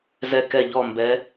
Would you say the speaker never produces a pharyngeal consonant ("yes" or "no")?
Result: yes